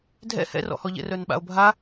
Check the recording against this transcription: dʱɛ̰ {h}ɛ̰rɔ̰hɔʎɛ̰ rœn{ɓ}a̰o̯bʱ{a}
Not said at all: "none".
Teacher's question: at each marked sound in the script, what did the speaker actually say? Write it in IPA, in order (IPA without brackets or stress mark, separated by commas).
h, ɓ, a